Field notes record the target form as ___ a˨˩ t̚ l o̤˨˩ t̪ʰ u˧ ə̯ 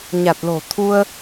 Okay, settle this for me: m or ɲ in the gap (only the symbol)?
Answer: ɲ